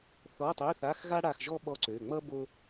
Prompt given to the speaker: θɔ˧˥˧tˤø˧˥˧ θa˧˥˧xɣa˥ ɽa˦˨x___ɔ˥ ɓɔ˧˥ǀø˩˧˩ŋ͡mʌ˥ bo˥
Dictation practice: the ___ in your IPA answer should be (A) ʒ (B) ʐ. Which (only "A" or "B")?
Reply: A